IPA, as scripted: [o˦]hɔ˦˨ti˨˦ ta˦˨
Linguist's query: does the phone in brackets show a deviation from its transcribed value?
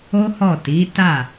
no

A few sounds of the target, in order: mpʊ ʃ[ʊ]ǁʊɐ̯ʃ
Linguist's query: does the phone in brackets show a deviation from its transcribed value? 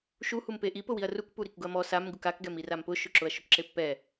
no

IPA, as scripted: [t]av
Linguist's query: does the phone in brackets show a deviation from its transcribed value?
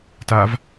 no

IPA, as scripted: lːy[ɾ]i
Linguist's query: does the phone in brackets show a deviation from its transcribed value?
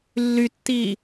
yes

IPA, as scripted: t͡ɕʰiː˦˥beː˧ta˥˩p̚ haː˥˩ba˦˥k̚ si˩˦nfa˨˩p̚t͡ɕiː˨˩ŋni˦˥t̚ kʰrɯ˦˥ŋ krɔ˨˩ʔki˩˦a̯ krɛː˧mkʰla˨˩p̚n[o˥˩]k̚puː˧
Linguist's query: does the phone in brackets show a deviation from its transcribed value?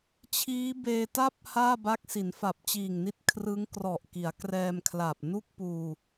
yes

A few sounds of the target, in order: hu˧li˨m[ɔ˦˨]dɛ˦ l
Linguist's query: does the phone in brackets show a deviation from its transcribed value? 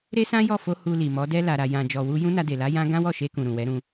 yes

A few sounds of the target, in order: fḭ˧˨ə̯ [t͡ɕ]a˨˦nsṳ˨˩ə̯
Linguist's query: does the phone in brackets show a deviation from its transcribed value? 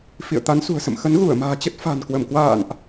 yes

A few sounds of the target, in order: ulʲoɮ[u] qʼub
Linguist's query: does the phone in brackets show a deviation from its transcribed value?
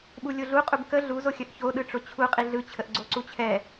no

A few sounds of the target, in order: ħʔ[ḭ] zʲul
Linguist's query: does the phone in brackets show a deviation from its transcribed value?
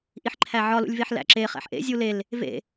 yes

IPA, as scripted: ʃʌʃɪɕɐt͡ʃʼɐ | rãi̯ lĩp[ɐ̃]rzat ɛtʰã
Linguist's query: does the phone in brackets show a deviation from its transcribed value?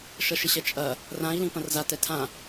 no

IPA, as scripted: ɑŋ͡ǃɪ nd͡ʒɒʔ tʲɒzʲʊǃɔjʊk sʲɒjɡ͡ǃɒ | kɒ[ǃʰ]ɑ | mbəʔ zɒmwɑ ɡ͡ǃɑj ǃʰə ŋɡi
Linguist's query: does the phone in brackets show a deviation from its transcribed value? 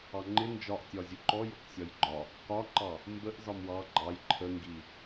yes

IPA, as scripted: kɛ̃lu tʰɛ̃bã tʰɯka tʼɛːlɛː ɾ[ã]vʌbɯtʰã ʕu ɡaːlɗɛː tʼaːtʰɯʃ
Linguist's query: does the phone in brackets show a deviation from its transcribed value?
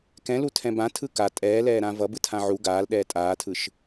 no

